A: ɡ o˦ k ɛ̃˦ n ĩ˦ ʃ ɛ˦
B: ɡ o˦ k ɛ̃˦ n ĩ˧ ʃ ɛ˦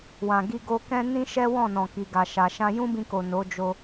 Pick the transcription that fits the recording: A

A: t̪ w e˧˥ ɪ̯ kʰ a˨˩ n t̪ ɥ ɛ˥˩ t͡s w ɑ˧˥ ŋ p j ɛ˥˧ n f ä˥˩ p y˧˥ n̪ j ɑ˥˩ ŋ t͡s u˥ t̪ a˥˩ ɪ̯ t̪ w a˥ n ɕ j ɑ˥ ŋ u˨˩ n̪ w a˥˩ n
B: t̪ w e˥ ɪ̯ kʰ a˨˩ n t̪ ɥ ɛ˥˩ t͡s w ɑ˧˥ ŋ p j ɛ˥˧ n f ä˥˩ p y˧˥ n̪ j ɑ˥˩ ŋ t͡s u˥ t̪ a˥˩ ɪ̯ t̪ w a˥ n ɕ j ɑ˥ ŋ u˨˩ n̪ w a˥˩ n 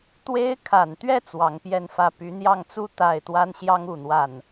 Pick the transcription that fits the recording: B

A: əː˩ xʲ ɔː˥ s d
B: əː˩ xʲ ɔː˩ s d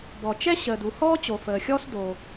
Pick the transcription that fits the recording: A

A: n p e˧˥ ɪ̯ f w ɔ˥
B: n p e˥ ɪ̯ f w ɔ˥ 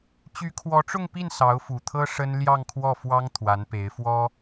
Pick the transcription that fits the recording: A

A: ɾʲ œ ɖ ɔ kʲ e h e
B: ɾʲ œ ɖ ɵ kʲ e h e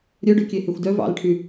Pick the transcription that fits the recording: B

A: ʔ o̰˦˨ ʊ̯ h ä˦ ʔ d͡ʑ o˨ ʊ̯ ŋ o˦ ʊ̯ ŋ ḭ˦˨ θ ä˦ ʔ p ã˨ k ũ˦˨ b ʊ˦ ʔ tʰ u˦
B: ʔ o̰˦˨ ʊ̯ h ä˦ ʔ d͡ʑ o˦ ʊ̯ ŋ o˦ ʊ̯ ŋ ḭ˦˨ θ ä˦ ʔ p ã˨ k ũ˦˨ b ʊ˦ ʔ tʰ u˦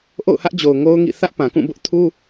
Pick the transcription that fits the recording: A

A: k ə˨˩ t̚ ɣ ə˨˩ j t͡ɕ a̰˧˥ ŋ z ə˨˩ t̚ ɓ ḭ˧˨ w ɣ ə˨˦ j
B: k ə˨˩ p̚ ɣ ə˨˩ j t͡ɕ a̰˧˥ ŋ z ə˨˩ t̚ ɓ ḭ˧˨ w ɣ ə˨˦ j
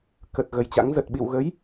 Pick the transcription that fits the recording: A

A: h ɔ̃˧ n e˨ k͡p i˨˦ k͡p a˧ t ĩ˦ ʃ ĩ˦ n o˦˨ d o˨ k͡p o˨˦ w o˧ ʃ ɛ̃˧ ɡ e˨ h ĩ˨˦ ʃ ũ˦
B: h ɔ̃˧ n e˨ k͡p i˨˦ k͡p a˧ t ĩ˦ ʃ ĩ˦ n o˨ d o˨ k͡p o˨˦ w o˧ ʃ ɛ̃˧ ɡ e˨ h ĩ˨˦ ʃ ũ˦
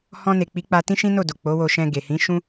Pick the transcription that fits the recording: A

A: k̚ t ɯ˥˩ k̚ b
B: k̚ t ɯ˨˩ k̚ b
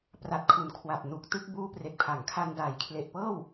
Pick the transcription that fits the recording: A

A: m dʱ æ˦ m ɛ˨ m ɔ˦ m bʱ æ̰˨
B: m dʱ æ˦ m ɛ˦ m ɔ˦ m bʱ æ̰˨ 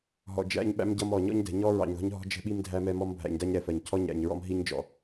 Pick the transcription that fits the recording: B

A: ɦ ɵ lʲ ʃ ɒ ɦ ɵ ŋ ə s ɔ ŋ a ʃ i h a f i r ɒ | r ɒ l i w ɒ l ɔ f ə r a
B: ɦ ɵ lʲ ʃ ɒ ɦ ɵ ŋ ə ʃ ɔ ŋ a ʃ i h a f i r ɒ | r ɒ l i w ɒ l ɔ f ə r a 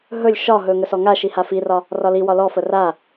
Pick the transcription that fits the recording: A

